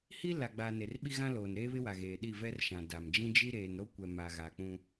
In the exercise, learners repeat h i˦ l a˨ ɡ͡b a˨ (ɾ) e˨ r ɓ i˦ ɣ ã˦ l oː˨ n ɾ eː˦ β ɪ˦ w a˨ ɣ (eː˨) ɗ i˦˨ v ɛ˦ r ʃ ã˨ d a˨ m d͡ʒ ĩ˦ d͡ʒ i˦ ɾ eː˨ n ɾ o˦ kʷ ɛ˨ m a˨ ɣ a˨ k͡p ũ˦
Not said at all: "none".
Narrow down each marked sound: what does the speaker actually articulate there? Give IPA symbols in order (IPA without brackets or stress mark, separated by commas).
n, eː˨